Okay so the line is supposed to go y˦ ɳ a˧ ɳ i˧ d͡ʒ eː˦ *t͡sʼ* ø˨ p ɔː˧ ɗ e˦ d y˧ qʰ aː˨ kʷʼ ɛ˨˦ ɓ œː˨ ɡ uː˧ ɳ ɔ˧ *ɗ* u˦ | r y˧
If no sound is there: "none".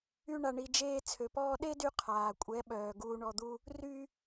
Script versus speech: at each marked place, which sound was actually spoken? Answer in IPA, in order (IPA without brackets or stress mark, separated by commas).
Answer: t͡sʰ, d̪